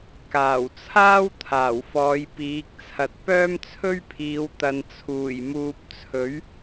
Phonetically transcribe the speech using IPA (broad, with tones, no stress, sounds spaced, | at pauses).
k aː˨˩ w t͡sʰ aː˥ w t̪ʰ aː˨˩ w f ɔː˨˧ j p iː˨˥ k̚ t͡sʰ ɐ˨ t̚ p œː˥ m t͡sʰ ɵ˥ ɥ pʰ iː˨˧ w t̪ ɐ˨ n t͡sʰ uː˨˩ j m uː˨ p̚ t͡sʰ ɵ˨˥ ɥ